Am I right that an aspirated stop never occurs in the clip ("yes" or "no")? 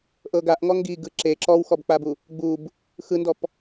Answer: yes